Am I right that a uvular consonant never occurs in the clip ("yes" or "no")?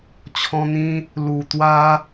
yes